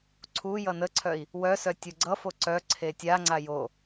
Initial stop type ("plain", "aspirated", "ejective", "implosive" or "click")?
click